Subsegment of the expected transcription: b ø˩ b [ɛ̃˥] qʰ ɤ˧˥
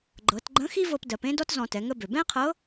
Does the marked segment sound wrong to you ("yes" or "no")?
no